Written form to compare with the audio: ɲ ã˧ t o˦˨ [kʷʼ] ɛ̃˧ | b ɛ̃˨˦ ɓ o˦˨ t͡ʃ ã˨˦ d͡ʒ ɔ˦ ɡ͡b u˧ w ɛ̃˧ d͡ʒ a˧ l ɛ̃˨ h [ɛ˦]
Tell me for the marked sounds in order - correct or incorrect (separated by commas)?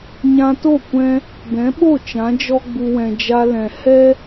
incorrect, correct